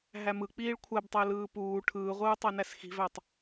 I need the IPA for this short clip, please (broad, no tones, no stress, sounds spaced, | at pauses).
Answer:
ɦ æ m ɯ k͡p iː ɭ kʷʰ æ b tˤ æ l ɯː p uː ʈʰ ɯː ʁʷ ɯː tˤ æ n æ s x i̤ v æ tˤ